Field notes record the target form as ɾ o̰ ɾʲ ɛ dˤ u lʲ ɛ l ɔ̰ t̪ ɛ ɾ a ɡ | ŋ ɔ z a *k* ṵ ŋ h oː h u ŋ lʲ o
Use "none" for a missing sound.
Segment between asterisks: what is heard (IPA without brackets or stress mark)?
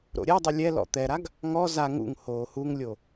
ŋ